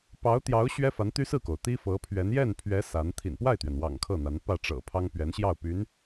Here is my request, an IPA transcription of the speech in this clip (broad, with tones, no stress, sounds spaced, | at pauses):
p ɑ˧˥ ʊ̯ t̪ j ɑ˧˥ ʊ̯ ɕ ɥ ɛ˥ f a˧˥ n t̪ y˥ s ɹ̩˥˩ k o˩ ʊ̯ t̪ i˥ f ɤ˧˥ pʰ ɥ ɛ˧˥ n j ɛ˥˩ n pʰ ɥ ɛ˧˥ s a˧˥ n t̪ʰ ḭ˨˩ n p w a˥˩ ɪ̯ t̪ ɥ ɛ˩ n w ɑ̰˨˩ ŋ kʰ ɤ˥˩ n̪ a˧˥ n p ä˥˩ ʈ͡ʂ ɤ̰˨˩ pʰ ɑ˥ ŋ p ɥ ɛ˧˥ n ɕ j ɑ˥˩ ʊ̯ p y˧˥ n